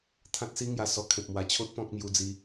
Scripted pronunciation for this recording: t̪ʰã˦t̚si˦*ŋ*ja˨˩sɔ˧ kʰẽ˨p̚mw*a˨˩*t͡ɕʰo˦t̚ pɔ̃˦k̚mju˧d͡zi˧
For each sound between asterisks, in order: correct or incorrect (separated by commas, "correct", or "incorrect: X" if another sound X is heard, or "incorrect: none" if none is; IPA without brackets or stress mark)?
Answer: correct, correct